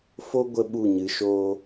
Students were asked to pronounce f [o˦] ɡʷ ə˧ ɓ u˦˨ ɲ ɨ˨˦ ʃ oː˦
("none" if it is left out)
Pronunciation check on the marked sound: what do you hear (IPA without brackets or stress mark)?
o˦